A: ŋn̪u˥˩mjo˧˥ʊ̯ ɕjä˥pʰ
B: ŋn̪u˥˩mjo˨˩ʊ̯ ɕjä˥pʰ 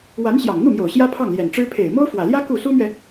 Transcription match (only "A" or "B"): B